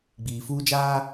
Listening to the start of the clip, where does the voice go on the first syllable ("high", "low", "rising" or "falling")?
low